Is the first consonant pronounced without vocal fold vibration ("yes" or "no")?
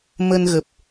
no